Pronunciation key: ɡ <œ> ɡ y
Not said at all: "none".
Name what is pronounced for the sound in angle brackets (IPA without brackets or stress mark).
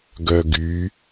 œ